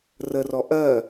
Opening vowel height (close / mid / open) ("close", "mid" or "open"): mid